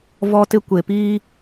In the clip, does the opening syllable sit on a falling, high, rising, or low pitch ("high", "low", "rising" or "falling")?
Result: high